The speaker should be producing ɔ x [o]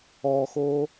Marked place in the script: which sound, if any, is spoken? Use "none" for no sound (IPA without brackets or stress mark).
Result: o